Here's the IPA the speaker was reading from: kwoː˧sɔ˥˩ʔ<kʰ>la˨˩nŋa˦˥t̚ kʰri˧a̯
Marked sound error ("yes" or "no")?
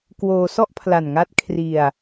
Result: yes